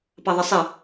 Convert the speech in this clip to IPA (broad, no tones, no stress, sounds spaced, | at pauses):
p ɑ ðˤ ə sˤ ɪ